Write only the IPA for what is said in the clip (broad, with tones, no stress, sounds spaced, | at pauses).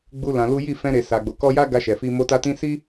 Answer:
ɡ͡b u˦ l ã˧ l u˦ j i˦˨ f ɛ̃˧ ɾ e˨ s a˨ ɡ͡b o˨ k ɔ˧ j a˦ ɡ a˧ ʃ ɛ˨ f i˧ m o˧ t a˧ t ĩ˧ s i˦